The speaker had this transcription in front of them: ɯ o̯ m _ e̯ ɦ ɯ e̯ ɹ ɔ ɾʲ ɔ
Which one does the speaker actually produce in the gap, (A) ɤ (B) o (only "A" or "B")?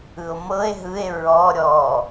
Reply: A